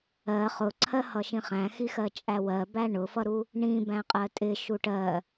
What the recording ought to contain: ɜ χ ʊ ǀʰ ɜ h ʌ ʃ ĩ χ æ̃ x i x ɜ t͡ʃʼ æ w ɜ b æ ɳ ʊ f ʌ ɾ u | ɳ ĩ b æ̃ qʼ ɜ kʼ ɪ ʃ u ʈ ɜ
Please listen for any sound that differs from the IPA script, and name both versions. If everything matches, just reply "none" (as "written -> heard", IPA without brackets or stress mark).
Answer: kʼ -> tʼ